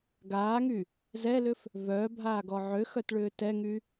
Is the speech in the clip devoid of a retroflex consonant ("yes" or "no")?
no